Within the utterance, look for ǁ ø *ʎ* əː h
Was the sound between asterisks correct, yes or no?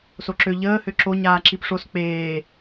yes